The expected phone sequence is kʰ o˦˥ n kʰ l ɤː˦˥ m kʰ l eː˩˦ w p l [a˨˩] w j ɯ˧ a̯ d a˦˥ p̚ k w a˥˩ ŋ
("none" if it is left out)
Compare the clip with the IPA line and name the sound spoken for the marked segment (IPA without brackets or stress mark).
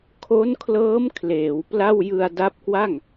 a˥˩